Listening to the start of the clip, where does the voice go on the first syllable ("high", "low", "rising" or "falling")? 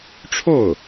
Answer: falling